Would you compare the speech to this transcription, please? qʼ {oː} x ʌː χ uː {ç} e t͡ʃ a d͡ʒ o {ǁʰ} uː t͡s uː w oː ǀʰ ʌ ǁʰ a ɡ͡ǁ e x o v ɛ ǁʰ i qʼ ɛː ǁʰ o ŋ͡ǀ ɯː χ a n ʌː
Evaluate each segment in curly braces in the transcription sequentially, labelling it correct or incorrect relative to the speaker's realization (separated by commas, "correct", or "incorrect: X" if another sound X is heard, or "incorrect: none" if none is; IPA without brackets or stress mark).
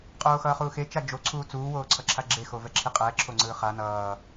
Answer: correct, incorrect: x, incorrect: ǀʰ